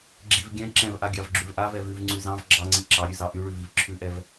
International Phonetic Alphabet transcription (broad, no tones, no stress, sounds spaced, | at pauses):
ɡ͡ǁ i v ɡʲ ɛ̃ ǁ ɛ̃ v ʔ a ɡʲ ɑ v ɡ͡ǁ ʉ v ʔ a v ɛ v ʉ v ŋ͡ǀ ʉ z ɑ̃ v ɡ͡ǁ ɑ ŋ͡ǀ i ǁ ɑ ɾʲ ʉ z ɑ ʔ y ɭ ʉ v i v ǁʰ ʉ ʔ ɛ v